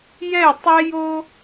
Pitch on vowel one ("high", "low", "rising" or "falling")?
falling